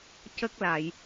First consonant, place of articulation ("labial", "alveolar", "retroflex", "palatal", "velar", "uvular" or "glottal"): palatal